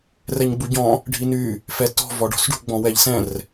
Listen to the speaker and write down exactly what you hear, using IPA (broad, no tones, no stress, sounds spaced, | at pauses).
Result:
r ɛ ɲ ɡ͡b u ɟ ɔ̃ | ɖʱ i n y | f ɛ t ɔ̤ v ɔ ɖ ɔ̤ s ɖ ṳ ɡ͡b ɔ̃ w ɛ ʎ s ɛ̃ r